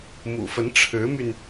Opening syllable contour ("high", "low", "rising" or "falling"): low